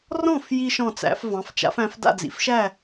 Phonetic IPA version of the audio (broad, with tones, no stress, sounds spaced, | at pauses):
r ɔ̃˥˩ f j i˧ ʃ ɔ̃˥˩ t͡s æ̰˩˥ f v ɑ̃˩˥ f t͡ʃ a̰˩˥ f æ̃˩˥ f d a̰˥˩ d͡z ḭ˩ f ʃ æ˥˩